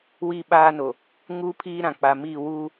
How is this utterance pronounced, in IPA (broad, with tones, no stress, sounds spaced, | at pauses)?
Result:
w i˦˨ ɓ aː˦ n o˨ | ŋ u˦ pʰ iː˦ ɾ ã˨ k͡p a˨ m i˦˨ w u˦